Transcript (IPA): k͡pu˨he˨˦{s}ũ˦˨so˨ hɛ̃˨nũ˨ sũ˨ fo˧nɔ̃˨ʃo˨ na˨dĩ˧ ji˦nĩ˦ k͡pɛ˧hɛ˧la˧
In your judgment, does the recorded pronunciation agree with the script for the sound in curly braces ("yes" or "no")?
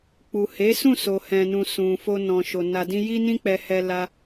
yes